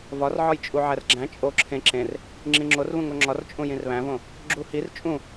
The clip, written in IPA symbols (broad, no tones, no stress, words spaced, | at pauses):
vɒrʕɒjt͡ʃʼu ʕærɡ͡ǁæ̃ t͡ʃʼo ǁʰẽ ǁẽr | ŋ͡ǁĩŋ͡ǁorβũ ŋoŋ͡ǁɒrt͡ʃʼũ jĩrβæ̃võ | ɡ͡ǁuhir t͡ʃʼũ